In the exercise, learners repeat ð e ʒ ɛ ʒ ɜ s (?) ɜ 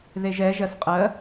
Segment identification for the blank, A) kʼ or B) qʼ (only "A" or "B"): B